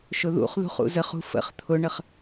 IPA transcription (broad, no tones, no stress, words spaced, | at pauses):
ʃʊðṵχðṳχ ṵzəχṳ fə̰χ t̪ʰʊɳəχ